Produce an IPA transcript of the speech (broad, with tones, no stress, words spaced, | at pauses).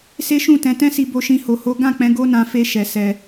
se˦ʃũ˦˨tɛ̃˨˦ tɛ̃˦si˧bo˧ʃĩ˧ ho˨ho˨˦ ɡã˦˨k͡pɛ̃˨˦ ɡo˦nã˧ fe˦ ʃɛ˧ sɛ˧